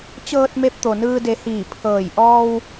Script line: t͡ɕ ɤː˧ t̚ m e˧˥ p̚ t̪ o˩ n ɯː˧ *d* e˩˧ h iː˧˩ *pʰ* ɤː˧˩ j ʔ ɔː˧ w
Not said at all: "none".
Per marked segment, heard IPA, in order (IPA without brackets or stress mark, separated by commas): d, pʰ